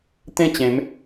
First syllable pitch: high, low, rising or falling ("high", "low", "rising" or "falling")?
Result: falling